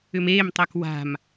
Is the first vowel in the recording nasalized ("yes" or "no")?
no